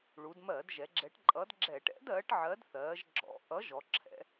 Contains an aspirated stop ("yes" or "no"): yes